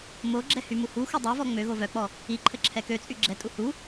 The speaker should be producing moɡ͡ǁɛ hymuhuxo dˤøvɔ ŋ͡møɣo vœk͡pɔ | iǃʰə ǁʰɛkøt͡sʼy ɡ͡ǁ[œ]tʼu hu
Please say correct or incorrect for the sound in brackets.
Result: incorrect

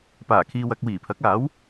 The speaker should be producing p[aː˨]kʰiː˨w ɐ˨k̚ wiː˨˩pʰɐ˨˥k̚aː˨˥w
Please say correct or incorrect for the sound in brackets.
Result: incorrect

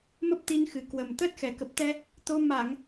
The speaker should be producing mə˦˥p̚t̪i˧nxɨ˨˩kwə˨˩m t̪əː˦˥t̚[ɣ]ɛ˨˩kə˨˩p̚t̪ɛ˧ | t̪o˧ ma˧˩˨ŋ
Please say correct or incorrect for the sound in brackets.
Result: incorrect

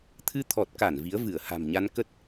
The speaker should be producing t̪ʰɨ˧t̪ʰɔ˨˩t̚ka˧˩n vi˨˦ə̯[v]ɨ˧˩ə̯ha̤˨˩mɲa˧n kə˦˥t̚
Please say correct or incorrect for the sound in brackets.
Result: correct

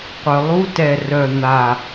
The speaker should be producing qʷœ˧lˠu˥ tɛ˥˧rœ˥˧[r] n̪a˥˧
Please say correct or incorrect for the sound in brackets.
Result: incorrect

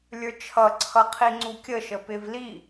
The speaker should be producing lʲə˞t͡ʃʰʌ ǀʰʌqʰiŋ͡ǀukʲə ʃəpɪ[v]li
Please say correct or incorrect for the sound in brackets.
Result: correct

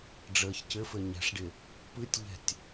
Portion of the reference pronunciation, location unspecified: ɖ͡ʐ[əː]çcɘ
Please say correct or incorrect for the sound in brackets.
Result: correct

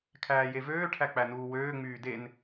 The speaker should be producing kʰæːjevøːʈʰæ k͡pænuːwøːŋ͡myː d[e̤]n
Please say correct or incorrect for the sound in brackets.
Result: incorrect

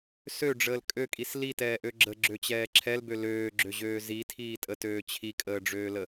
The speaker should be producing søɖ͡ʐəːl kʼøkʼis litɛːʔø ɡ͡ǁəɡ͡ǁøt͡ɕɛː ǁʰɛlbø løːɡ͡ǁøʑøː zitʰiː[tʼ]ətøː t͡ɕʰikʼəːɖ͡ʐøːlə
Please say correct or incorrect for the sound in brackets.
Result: correct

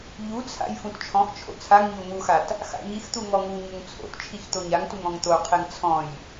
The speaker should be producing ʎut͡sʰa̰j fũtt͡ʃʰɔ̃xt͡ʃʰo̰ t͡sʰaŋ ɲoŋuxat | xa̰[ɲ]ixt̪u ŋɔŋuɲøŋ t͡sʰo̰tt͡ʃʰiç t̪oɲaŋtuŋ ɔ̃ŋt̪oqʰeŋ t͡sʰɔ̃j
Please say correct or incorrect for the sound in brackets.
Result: correct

